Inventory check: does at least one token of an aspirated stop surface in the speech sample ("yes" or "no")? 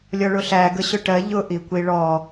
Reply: no